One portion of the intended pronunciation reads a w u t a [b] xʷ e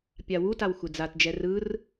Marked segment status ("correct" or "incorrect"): incorrect